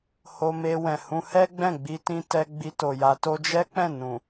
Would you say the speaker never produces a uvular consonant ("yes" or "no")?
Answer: yes